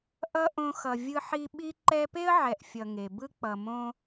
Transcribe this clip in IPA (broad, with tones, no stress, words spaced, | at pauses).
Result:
ʔʌ˥ʔõ˦xʌ˨ vʲɯ˦ ħi˥ ɓi˦ǃɛ˦pe˥ə̯ ʕɛ˨ʔfʲʌ˨ ŋe˩bɯ˥k͡pʌ˨ mõ˦